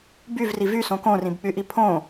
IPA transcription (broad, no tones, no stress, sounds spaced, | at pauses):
b y v r i v y s õ k õ r ĩ b k͡p y ʔ i pʰ õ